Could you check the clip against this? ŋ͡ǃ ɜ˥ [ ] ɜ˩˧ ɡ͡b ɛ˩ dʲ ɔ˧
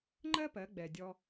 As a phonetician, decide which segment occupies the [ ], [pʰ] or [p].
p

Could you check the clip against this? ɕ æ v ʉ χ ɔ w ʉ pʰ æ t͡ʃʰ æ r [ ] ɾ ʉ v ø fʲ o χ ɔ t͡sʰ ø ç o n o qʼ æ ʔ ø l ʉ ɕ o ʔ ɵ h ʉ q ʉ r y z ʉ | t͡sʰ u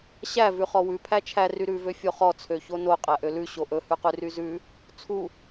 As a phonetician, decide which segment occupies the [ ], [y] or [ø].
y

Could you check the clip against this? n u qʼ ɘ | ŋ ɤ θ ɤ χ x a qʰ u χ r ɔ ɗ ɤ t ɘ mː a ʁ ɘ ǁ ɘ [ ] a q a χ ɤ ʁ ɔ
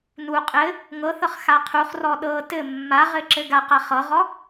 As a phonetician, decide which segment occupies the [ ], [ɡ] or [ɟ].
ɡ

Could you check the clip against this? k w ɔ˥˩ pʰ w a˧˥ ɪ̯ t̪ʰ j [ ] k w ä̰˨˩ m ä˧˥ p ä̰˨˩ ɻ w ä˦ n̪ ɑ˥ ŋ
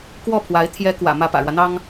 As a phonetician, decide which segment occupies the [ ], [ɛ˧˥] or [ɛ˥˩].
ɛ˧˥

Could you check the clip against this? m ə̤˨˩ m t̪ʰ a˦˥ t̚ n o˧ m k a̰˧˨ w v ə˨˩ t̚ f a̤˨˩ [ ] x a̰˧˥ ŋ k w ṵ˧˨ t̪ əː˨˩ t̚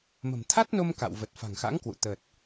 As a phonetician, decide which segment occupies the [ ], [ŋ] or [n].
ŋ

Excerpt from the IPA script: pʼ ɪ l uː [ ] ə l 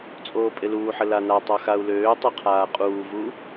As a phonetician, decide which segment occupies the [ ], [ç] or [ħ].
ħ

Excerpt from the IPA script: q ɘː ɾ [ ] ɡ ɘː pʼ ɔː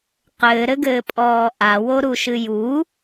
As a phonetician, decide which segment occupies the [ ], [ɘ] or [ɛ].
ɘ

